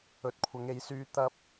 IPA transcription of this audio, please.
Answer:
ɵ˨ t̚ kʷʰ ɐ˨˧ ŋ e˨˧ j s yː˧ t̪ ɐ˥ p̚

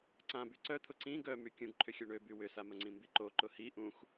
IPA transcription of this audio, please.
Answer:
ǀ ã b y ǀ œ t̪ʰ ʊ ǀ ĩ ɡ œ m y kʲ ũ ɡ ǃʰ ʏ xʲ œ ɳ ø b y w ʏ s a m ə ŋ͡ǀ ĩ m b i ǃ o ǃ ʊ h i ʔ ũ x

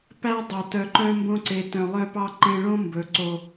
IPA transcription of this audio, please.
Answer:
p æ˦ dˤ o˨ t œ˨ ǃ œ̃˧ m b õ˧ ǀ e˨ t œ̃˨ lˠ œ˧ p ɑ˧ ǃ ẽ˧ ɭ õ˦ m b ɵ˨˦ ǀ o˧

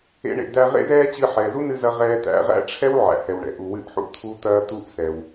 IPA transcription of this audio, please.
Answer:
ḛ˧ ɳ ḛ˩ d̪ æ˧ ʁ ḛ˥ z ɛː˥ t͡ɕ ɨ˧ ħ ɛː˩ z u˥ n ɨ˧ z ɐ˧ ʁ ɛː˧ t̪ æ̰˧ ʁ æ̰˥ ʈ͡ʂʰ ɛ˥ w ʕ æ̰˩ h ɛ˩ w ɳ ɛ̰˩ ʔ u˩ w ɨ˧ ʔ ħ ṵ˧ t̪ʰ u˧ t̪ ɐː˧ t̪ u˧ ʔ s ɛ˩ w

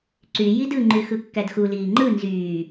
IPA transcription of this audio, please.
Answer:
ǀ y j i d ɯ ŋ͡ǃ y x ɯ kː æ d x u l iː ŋ͡ǃ ɯ n z yː

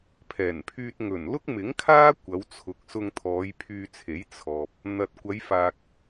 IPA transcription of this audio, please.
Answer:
pʰ ɛː˨˩ n pʰ yː˧ t̚ ŋ ɵ˨˩ n l ʊ˥ k̚ m ɪ˨˥ ŋ kʰ aː˥ kʷ ɐ˨˧ w t͡sʰ ʊ˨˥ k̚ s ʊ˧ ŋ t̪ʰ ɔː˨˧ j pʰ yː˧ t͡sʰ e˨˥ j t͡sʰ ɔː˨ p̚ | n̪ ɐ˨ t̚ kʷ ɐ˨˧ j f aː˨ k̚

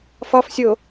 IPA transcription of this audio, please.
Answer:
f ɒ f sʲ o

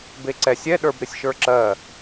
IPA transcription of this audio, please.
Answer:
b e ǀ ɛ sʲ ɛ ɗ ə˞ b ɾ ɪ sʲ ʃ ə˞ ǁ ɜ

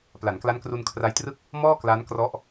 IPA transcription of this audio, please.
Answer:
p l a˩˦ n k l a˦˥ n k r u˧ n kʰ r a˦˥ j t r ɯ˥˩ k̚ | m ɔː˥˩ k l a˦˥ n k r ɔ˦˥ ʔ

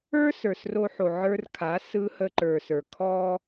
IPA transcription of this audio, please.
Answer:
ə˞˦ s ə˞˨ s r o˧ ħ o˨ ʕ ə˞˧ r kʰ a˨˦ s ɯ˧ h ə˧ ǃ ə˞˨ s ə˞˨ kʰ ɔ˦

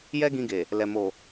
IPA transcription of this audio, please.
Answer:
j ɛ˦ ɡ ĩ˧ ɡ e˨ | l ɛ˨ m o˨

